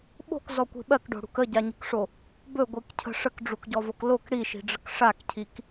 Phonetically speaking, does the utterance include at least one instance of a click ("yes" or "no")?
no